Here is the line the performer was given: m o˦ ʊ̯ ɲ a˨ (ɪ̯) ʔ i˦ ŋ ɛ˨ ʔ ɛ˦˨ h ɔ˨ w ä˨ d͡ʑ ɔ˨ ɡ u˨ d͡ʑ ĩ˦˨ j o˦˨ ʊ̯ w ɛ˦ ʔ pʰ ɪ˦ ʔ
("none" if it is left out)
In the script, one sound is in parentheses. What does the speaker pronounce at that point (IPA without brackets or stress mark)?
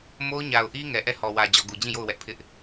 ʊ̯